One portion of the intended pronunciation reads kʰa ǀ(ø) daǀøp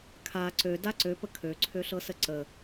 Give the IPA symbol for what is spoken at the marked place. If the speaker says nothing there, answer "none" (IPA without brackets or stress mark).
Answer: ø